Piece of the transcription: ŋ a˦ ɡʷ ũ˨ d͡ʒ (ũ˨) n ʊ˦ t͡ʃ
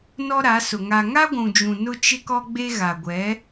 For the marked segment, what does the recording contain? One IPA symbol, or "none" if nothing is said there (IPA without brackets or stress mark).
ũ˨